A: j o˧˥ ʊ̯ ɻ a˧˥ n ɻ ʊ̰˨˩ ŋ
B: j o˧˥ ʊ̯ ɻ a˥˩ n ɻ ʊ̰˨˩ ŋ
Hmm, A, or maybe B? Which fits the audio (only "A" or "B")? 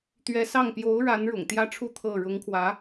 A